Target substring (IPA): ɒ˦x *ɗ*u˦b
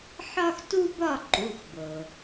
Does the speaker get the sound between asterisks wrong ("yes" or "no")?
yes